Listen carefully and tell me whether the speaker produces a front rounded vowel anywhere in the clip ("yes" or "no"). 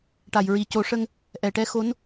no